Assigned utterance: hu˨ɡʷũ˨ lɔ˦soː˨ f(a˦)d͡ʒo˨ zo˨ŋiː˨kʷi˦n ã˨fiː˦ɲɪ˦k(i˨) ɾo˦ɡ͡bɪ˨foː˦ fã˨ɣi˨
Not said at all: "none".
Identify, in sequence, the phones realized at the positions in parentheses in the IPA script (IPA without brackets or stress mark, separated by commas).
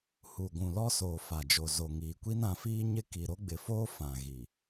a˨, i˨